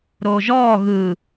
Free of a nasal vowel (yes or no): yes